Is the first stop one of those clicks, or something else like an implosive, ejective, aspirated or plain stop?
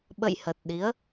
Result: implosive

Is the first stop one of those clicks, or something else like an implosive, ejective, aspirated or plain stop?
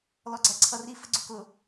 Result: click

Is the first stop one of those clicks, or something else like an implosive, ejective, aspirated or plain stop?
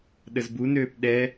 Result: implosive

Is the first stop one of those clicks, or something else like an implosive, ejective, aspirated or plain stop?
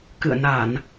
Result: plain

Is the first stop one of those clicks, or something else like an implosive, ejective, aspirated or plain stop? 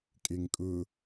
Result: ejective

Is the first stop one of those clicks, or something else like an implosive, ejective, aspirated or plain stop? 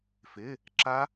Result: click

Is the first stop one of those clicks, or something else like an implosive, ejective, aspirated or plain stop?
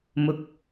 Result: plain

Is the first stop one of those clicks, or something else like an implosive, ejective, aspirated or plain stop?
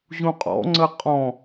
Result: ejective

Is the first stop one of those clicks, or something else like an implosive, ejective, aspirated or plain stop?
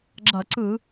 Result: click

